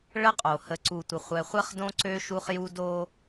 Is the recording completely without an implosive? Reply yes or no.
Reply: yes